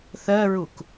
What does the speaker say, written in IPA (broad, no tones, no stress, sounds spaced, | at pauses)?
θ ɜ ɹ u k